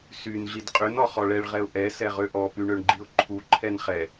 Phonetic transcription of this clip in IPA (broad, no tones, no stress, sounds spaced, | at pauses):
s y n ɮ i d qʼ y n ɔ χ ɔ ɭ ɛ ɭ ʁ ɛ ʊ̯ ʔ ɛ s ɛ ʁ ø ʔ ɔ p y ɳ ø ɳ ɡ͡ǃ i ʊ̯ ǃʰ u ǃʰ ɛ n χ ɛ